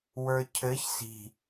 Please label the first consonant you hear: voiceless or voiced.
voiced